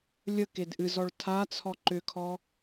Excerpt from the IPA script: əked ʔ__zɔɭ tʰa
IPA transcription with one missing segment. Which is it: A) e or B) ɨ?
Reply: B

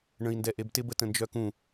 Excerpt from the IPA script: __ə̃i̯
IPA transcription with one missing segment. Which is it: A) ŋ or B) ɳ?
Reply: B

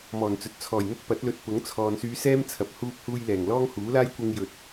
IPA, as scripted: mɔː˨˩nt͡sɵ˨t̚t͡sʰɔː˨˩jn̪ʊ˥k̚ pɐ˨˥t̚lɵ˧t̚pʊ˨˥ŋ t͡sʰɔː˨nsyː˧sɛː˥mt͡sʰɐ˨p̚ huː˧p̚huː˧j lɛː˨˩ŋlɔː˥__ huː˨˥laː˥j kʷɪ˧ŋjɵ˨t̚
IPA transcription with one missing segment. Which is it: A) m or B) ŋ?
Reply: B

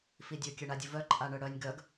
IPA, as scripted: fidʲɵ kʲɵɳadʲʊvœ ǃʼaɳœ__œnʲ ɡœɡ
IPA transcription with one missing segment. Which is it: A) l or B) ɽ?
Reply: B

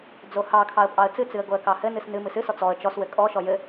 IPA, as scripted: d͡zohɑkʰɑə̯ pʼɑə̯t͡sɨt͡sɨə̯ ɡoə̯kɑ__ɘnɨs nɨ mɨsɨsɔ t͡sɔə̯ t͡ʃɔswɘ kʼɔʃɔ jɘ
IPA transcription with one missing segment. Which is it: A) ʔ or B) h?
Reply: B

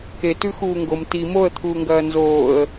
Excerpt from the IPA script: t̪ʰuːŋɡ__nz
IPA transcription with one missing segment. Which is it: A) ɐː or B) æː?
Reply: A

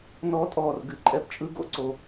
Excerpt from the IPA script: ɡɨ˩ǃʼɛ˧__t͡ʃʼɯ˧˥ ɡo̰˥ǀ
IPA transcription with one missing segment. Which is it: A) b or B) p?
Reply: B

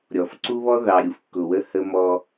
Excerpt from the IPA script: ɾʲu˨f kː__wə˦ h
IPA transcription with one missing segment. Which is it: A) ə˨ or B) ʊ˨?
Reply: B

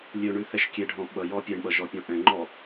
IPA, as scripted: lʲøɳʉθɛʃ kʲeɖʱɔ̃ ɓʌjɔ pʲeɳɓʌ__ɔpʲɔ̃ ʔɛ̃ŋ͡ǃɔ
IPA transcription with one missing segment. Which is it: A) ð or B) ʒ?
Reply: B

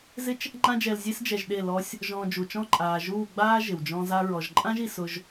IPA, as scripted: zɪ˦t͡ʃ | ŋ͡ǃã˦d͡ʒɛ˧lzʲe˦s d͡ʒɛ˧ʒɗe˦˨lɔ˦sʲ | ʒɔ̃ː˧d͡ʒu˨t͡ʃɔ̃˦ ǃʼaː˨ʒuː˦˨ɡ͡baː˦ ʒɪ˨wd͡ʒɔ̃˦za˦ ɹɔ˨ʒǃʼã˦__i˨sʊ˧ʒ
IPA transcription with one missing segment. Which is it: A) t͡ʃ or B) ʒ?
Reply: B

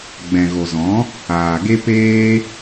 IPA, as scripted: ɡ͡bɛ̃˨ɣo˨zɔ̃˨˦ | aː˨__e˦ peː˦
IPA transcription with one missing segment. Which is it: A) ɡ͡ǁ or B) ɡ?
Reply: B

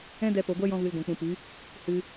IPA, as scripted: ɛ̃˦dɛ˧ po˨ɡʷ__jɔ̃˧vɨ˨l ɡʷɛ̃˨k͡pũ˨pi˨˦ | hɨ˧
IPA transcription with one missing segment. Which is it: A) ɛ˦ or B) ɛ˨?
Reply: A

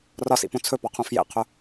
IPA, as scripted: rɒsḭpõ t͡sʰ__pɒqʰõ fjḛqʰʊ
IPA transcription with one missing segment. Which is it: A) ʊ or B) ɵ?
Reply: B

